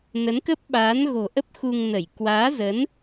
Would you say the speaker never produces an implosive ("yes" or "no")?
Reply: no